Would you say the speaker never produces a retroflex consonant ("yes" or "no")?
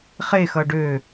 no